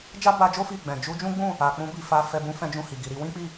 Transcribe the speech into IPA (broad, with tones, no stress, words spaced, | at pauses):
d͡ʒa˦ba˧d͡ʒo˦ fi˦˨ ɡ͡bɛ̃˨ d͡ʒu˧d͡ʒũ˦ɡ͡bũ˦˨ | a˨k͡pũ˧bi˨ fa˧fɛ˧ bũ˦fɛ̃˦d͡ʒũ˦˨hi˨ ɡi˨ɾi˧wĩ˦k͡pi˦˨